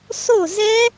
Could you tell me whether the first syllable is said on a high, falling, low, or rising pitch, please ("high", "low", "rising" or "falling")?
falling